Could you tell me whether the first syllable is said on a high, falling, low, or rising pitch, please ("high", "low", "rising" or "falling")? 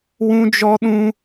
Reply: high